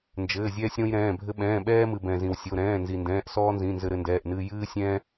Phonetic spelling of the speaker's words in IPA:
n d͡ʒ ɘː˩˧˩ zʲ ɛː˦ sʲ ɾ õ˦ j ɾ ɛ̃ː˩˧˩ bʱ ɘ˦ ɓ ɛ̃ː˩˧˩ ɓ ɛː˦ m ɨ˩ b ɛ̃˩ z ĩ˩ w sʲ o˩˧˩ ɾ ɛ̃ː˩˧˩ n z i˩ n d ɛ̃ː˩˧˩ ʔ s ɔː˦ n z ĩ˩˧˩ n z ɘ˦ ɾ ɘ˦ n d ɛː˩˧˩ ʔ n ɨː˦ j ɨː˦ sʲ ɛ̃˦

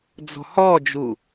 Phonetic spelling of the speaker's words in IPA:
d͡z ɔ̤ h ɔ d͡ʒ u

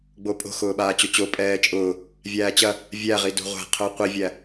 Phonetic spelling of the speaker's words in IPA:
ɡ͡b o pʼ o̤ x ʊː ɓ aː t͡ɕ o t͡ɕ o pʼ ɛː t͡ʃʼ ʊː | vʲ æː t͡ɕ ɐ | vʲ æ ʁ i d o̤ ʁʷ æ̤ qʰ ʊː qʷ i vʲ æ

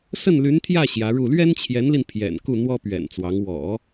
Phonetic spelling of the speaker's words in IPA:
s ə˥˩ n l y˧˥ n t̪ʰ j ä˥˩ ɕ j ä˧˥ ɻ u˥˩ l ɥ ɛ˥ n t͡ɕʰ j ɛ˧˥ n l i˧ n pʰ j ɛ̰˨˩ n k u˥˩ n̪ w ɔ˥ p ɥ ɛ̰˨˩ n t͡s w ɑ˧˥ ŋ w ɔ̰˨˩˦

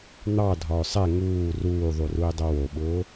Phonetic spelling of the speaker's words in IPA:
n̪ ɑ dʱ ɒ ʊ̯ sˤ ɛ ŋ uː r uː ðˤ u r u ɪ̯ dˤ o w o ɓ ʊː

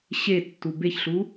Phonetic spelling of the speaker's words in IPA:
ɕ e tː u b e ç ɬ u

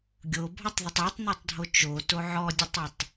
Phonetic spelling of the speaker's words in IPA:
ɡʲ o bʱ ɔ tˤ ð ə tˤ e tˤ n i tˤ dʱ o t͡ʃ o t o ʕ ɔ dʲ ə tˤ ə tˤ

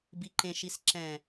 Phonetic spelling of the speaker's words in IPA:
b i ǃ ẽ ʃ i s ǁ ɛ̃

